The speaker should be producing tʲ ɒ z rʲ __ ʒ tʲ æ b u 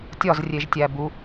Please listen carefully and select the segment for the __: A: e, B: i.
A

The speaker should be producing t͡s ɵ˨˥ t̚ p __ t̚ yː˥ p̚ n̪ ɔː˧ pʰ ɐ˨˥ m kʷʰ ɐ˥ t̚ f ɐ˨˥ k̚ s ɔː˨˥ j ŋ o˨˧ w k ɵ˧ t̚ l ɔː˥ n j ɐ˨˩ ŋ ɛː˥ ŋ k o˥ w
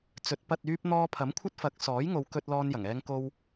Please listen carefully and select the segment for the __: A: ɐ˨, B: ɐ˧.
B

